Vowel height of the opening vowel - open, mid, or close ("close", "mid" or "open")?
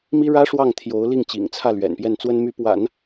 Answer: close